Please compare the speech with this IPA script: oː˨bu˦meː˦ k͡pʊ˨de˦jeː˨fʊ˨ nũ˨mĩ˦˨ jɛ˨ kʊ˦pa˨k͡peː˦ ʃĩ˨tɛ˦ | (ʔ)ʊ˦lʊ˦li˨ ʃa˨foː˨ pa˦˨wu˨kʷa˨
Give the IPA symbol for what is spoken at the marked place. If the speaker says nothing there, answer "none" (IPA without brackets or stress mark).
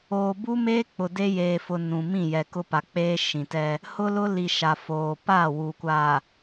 h